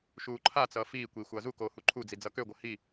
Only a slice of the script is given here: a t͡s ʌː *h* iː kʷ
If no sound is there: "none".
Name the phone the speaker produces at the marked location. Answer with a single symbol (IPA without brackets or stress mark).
f